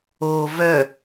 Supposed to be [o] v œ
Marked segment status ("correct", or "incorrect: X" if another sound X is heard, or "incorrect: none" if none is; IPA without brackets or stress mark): correct